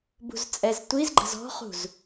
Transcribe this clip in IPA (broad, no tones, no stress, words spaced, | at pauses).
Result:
bṳzt͡sʼɛztʷizɡ͡ǃə̤z ɔ̤χṳz